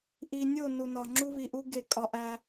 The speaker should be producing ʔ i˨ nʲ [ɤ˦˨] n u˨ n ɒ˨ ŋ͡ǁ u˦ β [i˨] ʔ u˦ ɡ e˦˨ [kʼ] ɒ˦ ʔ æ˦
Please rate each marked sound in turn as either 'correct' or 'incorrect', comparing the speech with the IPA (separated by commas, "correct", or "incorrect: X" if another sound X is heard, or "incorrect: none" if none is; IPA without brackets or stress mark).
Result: incorrect: o˦˨, correct, correct